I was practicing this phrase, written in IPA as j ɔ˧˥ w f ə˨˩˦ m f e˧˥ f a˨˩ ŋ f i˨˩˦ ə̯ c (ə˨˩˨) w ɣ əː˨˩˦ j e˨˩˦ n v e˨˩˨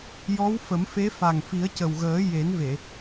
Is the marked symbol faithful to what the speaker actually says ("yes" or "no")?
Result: no